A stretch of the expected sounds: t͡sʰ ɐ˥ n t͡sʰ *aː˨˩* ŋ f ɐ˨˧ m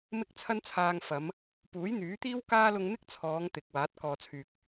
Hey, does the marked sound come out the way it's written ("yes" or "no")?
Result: no